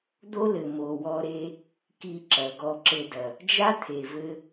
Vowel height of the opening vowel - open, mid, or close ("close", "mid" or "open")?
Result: mid